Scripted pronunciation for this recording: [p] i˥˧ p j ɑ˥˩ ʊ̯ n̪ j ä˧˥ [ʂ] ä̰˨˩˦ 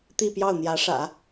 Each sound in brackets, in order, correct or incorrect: incorrect: t̪, correct

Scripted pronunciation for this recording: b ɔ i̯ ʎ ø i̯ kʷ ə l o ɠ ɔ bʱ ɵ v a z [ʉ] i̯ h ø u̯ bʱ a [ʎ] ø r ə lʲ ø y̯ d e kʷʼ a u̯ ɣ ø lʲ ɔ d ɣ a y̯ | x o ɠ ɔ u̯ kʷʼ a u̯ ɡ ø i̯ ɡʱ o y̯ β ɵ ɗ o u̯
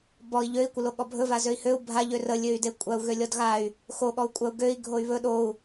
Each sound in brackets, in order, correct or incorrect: incorrect: ø, correct

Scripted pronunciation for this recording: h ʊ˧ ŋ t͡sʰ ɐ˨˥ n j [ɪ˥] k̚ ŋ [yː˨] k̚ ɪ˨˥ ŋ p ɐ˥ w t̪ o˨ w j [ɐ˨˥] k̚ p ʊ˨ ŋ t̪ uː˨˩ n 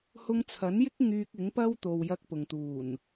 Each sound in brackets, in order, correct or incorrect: correct, incorrect: yː˧, incorrect: ɐ˧

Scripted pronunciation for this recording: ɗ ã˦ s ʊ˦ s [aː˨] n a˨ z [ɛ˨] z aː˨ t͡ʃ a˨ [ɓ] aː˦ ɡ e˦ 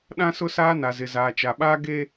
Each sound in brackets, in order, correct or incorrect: incorrect: aː˦, incorrect: ɪ˨, correct

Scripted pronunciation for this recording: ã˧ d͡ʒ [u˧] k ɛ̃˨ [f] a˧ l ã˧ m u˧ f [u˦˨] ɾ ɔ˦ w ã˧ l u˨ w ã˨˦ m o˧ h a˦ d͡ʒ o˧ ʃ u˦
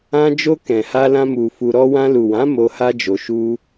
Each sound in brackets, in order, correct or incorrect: incorrect: o˧, incorrect: h, incorrect: u˧

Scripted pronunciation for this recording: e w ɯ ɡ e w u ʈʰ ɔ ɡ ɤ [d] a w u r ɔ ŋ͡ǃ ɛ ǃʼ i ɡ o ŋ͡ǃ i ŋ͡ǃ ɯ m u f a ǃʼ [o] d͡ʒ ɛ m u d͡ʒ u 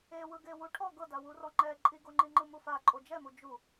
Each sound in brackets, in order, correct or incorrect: correct, correct

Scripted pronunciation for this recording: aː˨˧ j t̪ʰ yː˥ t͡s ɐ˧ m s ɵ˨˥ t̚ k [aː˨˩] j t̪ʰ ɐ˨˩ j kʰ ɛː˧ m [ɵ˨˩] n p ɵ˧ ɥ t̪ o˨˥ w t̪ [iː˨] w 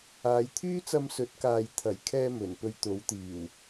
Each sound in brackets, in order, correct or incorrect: incorrect: aː˨, correct, incorrect: iː˨˩

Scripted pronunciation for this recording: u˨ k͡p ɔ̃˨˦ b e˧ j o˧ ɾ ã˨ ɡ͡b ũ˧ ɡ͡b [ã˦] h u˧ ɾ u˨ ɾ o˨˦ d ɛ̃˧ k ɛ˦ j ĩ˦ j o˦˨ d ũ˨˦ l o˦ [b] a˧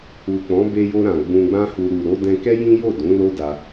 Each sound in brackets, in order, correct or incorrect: correct, incorrect: d

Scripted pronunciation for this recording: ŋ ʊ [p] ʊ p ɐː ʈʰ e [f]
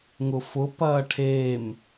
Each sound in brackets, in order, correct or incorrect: incorrect: f, incorrect: m

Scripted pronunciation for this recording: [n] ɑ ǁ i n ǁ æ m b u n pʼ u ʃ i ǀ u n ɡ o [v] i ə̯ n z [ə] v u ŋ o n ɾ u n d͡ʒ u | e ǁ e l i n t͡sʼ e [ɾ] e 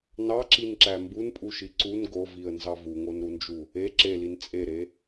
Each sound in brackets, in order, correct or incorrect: correct, correct, incorrect: ɑ, correct

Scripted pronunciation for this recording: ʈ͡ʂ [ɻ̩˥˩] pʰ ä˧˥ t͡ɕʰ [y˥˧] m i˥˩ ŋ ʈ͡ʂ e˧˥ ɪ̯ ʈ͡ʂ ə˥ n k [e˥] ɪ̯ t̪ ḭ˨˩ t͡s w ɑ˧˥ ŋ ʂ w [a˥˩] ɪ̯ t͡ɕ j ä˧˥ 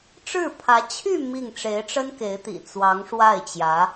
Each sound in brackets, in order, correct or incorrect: correct, correct, incorrect: e˧˥, correct

